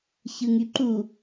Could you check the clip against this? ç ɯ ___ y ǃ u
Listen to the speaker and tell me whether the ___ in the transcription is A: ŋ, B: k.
A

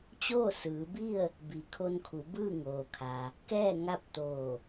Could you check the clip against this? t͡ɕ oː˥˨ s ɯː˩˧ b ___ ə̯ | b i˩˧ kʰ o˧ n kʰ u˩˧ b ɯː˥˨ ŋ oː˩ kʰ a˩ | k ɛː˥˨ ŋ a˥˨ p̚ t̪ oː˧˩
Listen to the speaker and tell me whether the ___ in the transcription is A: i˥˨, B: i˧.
A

